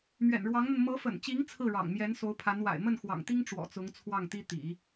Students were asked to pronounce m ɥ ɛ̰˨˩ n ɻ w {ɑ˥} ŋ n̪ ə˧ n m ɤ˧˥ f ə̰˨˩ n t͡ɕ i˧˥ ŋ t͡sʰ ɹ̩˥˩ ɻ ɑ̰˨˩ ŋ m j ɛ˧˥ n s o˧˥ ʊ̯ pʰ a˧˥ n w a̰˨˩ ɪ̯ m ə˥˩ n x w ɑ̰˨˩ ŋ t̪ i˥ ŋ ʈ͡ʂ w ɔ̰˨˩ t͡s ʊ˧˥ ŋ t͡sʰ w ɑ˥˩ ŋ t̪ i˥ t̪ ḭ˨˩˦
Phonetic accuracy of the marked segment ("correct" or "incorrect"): incorrect